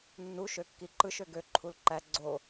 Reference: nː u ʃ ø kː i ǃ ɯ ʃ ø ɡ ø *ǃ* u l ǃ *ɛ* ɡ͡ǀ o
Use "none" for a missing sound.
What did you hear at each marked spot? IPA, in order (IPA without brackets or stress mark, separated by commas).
ǃʰ, æ